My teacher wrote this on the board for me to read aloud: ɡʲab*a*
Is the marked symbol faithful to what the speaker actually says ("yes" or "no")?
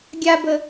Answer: no